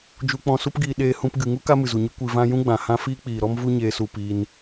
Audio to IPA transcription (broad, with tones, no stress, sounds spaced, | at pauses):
d͡ʒ u˧ k͡p ɔ̃˧ s u˦ p ɡ iː˧ ɗ eː˧ h ũ˧ p ɡ ɨ˨ ŋ u˦ k a˦ m ɨ˨ z u˨ ɲ ɨ˦ kʷ i˧ v ã˦ j ũ˦ ɡ͡b ã˨ h ã˦ f iː˦ k͡p iː˨ ɾ ɔ˦ m v u˦ ɲ eː˧ s u˧ p iː˧ n